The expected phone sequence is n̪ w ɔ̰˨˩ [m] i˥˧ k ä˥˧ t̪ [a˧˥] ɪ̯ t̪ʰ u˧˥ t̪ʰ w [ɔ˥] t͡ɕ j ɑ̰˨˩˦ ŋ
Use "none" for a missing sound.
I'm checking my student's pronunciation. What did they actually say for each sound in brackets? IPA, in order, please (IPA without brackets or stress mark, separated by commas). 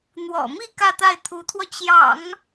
m, a˥˩, ɔ˧